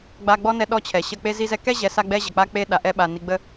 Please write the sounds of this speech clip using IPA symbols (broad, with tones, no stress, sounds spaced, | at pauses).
ɡ͡b a˧ ɡ͡b ɔ˦ n ɛ˧ ɗ ɔ˦ t͡ɕʰ ɛ˨ ɕ ə˧ k͡p e˦ z i˦ z ɛ˦ k ɛ˦ ʑ ɛ˨ s a˦ ɡ͡b ɛ˦ ʑ ə˨ k͡p a˦ k͡p e˦ ɗ a˧ ʔ ɛ˧ ɓ a˨ n i˧ ɡ͡b ə˦